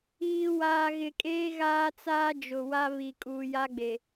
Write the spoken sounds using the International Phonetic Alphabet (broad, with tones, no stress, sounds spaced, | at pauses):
iː˨ w aː˨ ɣ ɪ˨ kʼ eː˦ ɣ aː˦ t͡s aː˦ d͡ʒ ʊ˨ w a˦ β i˨ kʼ uː˨ j a˦ ɡ͡b e˨